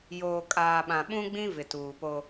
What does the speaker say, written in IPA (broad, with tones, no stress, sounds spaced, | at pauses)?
j oː˨ kʼ aː˨ ɓ ã˨ ɓ ũ˦ ɡ͡b ĩ˦ v ɪ˨ t uː˨ p o˦